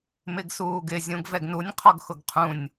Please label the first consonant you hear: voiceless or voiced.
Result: voiced